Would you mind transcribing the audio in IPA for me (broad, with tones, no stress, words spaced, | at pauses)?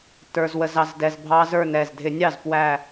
tə˞˧zwə˧z ɑ˧z dɛ˧zbʱɑ˦˥zə˞˥˧nɛ˧˩z dʱɪ˧˩˧nʲɑ˥˩zpwæ˧˩